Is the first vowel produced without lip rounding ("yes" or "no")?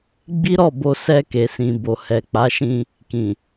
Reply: yes